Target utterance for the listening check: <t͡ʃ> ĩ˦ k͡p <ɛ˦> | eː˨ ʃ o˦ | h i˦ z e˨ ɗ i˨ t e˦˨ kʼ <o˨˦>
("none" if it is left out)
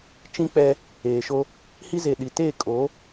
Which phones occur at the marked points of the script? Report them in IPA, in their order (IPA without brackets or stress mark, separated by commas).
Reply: t͡ʃ, ɛ˦, o˨˦